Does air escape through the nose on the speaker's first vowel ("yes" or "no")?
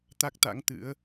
no